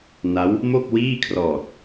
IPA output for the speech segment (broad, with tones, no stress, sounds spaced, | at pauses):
n a˦˥ w | m o˥˩ k̚ w iː˥˩ kʰ r ɔː˨˩ t̚